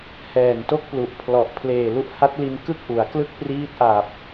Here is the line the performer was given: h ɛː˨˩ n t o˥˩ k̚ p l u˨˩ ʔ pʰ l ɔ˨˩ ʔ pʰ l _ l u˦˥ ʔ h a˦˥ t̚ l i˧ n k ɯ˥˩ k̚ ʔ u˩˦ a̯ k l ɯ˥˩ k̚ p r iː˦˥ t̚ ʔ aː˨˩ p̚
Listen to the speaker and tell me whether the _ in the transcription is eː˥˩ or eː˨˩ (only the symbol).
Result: eː˨˩